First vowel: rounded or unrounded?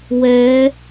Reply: unrounded